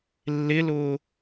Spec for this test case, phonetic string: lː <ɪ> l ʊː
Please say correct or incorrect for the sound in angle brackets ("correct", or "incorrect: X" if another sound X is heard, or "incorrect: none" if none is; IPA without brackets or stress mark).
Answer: correct